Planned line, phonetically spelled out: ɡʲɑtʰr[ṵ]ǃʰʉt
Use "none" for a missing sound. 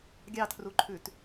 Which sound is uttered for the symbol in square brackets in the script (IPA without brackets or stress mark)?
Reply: u